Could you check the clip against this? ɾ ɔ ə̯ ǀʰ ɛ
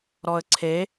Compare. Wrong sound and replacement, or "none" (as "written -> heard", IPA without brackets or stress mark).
ɛ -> e